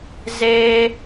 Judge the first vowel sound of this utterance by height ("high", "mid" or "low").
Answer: mid